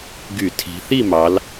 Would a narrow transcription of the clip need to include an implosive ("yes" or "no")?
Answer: no